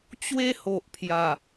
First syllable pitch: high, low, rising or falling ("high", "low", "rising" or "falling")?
high